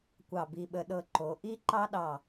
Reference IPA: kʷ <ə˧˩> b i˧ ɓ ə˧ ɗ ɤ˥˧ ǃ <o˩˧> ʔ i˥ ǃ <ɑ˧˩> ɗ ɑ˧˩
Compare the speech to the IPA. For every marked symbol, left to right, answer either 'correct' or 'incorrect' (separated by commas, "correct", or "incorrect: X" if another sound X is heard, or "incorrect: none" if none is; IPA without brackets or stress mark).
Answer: incorrect: ɑ˧˩, correct, incorrect: ɑ˥